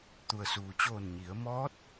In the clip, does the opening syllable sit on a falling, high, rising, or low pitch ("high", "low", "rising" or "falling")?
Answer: low